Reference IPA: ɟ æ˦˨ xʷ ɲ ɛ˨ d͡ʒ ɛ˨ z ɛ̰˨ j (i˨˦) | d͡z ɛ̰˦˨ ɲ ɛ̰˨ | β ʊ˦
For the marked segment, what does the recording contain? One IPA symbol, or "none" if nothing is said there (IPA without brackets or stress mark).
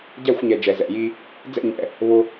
i˦